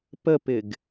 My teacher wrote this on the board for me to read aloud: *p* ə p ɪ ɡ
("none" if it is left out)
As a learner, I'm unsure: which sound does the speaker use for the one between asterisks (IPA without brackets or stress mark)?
p